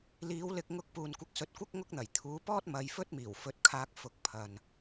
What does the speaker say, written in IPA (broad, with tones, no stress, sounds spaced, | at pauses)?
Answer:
l iː˨˧ w l ɪ˧ k̚ ŋ ʊ˧ k̚ p uː˨ n kʷ ɪ˨˥ k̚ s ɵ˨˥ t̚ kʷ ɐ˥ k̚ ŋ ʊ˥ k̚ n̪ ɐ˨˩ j t̪ʰ uː˨˧ p ɔː˥ t̚ m ɐ˧ j f ɵ˥ t̚ m iː˨˩ w f ɵ˨˥ t̚ kʰ aː˧ k̚ f ʊ˧ k̚ pʰ ɐ˨ n